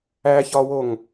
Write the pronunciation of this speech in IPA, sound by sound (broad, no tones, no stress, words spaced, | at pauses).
æçɒwoŋ